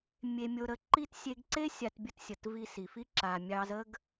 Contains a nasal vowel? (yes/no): no